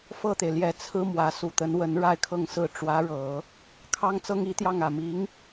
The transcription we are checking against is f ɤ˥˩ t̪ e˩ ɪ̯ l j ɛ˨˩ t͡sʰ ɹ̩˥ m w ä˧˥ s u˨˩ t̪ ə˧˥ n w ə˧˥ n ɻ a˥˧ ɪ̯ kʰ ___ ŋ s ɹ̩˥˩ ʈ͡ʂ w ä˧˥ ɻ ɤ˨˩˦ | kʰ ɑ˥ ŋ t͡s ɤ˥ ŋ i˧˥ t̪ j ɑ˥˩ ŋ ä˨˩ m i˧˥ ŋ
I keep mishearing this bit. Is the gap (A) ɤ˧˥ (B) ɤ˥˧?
B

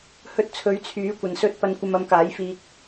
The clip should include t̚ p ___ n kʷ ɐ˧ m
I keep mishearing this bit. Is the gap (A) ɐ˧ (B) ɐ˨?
A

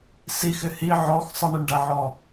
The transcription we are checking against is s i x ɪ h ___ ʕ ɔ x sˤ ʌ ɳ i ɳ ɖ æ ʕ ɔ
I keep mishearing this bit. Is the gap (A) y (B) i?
B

